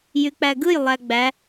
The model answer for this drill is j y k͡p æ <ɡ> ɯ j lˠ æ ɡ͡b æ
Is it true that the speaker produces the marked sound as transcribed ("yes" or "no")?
yes